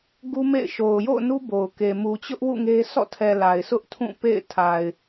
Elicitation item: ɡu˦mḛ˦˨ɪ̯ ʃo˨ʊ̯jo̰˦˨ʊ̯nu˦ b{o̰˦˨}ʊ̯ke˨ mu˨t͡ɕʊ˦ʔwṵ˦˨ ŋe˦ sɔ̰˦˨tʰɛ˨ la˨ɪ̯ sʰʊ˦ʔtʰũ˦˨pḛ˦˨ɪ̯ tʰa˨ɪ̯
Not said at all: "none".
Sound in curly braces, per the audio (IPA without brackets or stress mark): o˨